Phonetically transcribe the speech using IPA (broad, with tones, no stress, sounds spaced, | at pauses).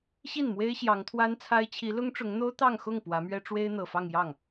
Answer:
ɕ i˥˩ n m w e˥ ɪ̯ ɕ j ɑ˧˥ ŋ t̪ʰ w a˥ n t͡sʰ a˥ ɪ̯ t͡ɕʰ i˧˥ l ʊ˥ ŋ ʈ͡ʂ ʊ˧˥ ŋ n̪ o˥ ʊ̯ t̪ ɑ˥˧ ŋ x ʊ˥˩ ŋ p w ä˧˥ m ɥ ɛ˥ ʈ͡ʂ w e˥ ɪ̯ n̪ ɤ˨˩ f ɑ˥˧ ŋ j ɑ˥˩ ŋ